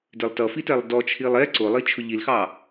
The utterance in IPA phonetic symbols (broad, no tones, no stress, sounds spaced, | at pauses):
d ɪ lˠ t ʌ f i t ɛ lˠ d ɔ t͡ʃʰ i lˠ ɛ ǀ ʊ lˠ i t͡ʃʰ ʊ ʎ i l x ɑ